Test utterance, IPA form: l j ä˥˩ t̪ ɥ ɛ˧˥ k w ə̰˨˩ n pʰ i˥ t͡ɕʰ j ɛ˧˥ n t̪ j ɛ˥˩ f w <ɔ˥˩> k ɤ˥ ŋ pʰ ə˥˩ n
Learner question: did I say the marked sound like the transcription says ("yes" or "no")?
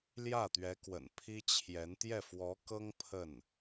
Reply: no